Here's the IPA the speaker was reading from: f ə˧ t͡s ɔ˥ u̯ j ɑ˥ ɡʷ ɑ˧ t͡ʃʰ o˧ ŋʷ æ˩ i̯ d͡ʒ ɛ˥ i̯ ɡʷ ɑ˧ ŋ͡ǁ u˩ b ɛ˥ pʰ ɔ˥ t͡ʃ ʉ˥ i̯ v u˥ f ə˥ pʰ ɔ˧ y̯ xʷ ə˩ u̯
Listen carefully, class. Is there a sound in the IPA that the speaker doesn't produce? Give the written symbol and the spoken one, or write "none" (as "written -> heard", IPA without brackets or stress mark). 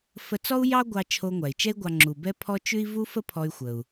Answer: d͡ʒ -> t͡ʃ